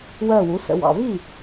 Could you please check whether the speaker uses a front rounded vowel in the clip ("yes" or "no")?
no